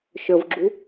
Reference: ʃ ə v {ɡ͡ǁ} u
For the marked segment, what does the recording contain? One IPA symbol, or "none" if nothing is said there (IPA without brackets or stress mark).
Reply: ɡ͡ǁ